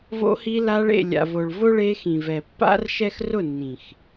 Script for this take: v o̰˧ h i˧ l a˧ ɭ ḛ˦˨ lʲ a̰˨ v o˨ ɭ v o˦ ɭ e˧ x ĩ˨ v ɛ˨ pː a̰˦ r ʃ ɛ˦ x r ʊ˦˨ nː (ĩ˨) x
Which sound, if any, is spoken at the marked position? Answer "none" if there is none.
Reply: ĩ˨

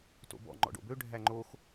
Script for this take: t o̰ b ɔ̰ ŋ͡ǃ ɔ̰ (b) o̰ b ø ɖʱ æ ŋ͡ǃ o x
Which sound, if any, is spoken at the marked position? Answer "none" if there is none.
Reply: ɖ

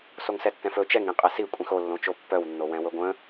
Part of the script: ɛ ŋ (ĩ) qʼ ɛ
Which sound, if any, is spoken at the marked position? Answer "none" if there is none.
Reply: ĩ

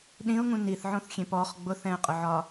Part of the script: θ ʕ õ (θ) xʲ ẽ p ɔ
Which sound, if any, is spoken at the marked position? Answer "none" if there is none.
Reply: θ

